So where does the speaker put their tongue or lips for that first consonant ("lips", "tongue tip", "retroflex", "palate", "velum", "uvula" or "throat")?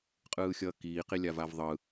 uvula